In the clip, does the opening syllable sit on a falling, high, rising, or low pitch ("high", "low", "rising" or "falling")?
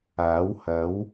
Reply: rising